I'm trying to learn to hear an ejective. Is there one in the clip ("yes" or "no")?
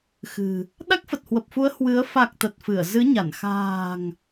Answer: no